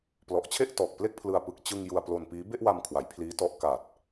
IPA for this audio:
p l ɔ˨˩ ʔ t͡ɕʰ e˥˩ ʔ t ɔː˨˩ k̚ p l e˥˩ k̚ pʰ l ɯ˧ a̯ p ɯ˨˩ k̚ t͡ɕ ɯ˧ ŋ j u˧ a̯ p l o˧ n p iː˦˥ b e˥˩ ʔ w a˧ m kʰ w a˩˦ j pʰ l iː˦˥ t ɔ˦˥ ʔ k a˨˩ t̚

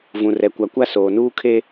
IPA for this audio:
v ũ˨ r ɛ˨ kʷ a˨ kʷ a˦ s oː˨ n uː˦ kʰ e˦

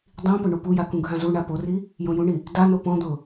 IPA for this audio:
dˤ ĩ p ʊ ɳ u p u j a k ũ ɡʱ ã z u ɳ a p o r i | j õ j ũ ɳ i | d a n o p ɔ̃ d̪ ʊ

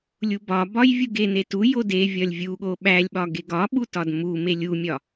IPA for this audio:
lʲ u b ɒ b ɒ j vʲ u ɡ e n e t u j o d e vʲ ɒ lʲ vʲ u ɠ o ɓ æ lʲ ɓ ɒ ɡ e ɡ ɒ ɓ u t ɒ d m u m e lʲ u mʲ ɒ

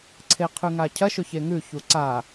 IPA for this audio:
ǀʰ e qʰ ʉ ŋ a cʰ ɐ ʃ o ç e ŋ ʉ ç u ǀ a

